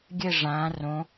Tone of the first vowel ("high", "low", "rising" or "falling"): falling